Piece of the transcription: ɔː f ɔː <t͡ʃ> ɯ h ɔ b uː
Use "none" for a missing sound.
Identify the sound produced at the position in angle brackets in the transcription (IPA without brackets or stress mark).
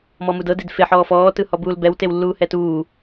t